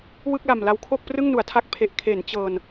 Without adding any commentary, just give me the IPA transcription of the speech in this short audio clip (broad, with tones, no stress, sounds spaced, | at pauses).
w ɯ˥˩ k̚ l a˨˩ m l a˧ w kʰ o˥˩ k̚ p r ɯ˥˩ ŋ n u˩˦ a̯ tʰ a˦˥ k̚ pʰ e˨˩ ʔ kʰ e˩˦ n t͡ɕ ɤː˨˩ n